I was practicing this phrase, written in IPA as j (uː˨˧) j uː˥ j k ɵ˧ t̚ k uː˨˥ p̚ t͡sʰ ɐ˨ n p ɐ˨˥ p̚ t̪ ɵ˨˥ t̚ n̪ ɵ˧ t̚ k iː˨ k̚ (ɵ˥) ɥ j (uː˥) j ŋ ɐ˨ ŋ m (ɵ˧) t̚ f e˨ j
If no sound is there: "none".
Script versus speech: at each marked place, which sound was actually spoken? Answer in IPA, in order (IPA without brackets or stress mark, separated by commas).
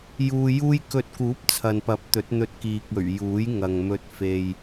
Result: uː˧, ɵ˨˩, uː˨˥, ɵ˧